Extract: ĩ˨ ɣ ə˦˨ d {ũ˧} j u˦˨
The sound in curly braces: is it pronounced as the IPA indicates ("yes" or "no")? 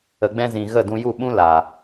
yes